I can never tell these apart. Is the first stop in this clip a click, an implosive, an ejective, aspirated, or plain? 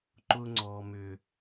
click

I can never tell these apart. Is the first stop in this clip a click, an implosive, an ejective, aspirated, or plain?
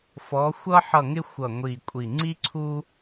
ejective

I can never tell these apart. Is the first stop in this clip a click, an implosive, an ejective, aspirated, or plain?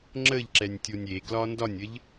click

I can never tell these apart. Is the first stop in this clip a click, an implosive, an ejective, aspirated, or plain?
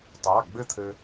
plain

